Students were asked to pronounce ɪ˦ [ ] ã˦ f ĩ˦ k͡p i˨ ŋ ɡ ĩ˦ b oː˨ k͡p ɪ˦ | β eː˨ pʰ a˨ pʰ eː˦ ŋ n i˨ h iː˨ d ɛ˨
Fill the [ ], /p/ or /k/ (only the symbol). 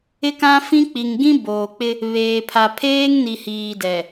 k